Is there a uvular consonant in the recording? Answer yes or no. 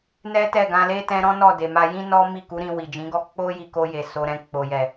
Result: no